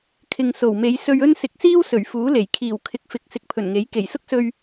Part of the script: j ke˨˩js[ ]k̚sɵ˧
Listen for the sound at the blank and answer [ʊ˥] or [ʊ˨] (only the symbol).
ʊ˥